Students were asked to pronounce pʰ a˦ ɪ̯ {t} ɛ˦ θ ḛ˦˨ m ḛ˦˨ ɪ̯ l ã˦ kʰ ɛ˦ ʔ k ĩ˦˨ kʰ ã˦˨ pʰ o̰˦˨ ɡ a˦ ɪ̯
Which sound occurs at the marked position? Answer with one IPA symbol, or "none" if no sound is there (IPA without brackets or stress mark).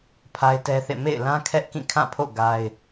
t